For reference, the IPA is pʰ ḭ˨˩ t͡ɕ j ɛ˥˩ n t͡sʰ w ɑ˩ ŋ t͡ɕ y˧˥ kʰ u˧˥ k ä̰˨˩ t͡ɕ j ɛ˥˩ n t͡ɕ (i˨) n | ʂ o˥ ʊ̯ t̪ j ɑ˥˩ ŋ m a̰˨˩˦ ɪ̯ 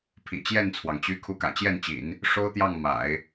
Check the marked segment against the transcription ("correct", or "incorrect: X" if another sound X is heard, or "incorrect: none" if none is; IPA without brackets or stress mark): incorrect: ḭ˨˩˦